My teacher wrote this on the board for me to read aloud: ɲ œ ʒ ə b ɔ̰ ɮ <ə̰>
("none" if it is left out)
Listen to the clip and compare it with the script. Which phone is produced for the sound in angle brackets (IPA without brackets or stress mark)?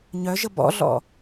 ɔ̰